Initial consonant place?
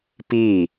labial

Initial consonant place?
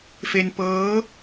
labial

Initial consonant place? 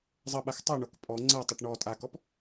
alveolar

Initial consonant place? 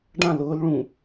retroflex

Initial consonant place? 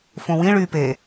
labial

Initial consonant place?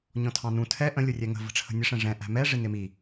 palatal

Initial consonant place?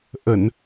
glottal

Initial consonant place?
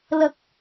alveolar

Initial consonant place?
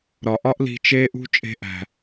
alveolar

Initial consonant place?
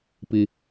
labial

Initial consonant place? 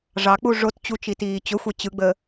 retroflex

